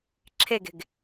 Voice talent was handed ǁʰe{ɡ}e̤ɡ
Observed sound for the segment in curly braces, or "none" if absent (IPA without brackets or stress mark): ɡ